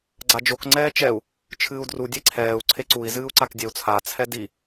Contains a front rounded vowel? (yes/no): no